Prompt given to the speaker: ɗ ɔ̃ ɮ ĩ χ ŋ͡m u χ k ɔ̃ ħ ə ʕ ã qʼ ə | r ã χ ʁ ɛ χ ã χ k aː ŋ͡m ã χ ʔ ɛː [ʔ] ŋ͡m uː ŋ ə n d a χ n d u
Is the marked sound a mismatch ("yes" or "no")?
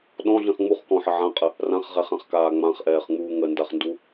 yes